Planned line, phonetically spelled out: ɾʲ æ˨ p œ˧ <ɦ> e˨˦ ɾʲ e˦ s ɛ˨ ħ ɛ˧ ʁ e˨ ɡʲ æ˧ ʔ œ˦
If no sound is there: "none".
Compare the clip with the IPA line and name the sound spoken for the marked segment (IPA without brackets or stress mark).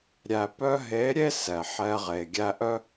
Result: ɦ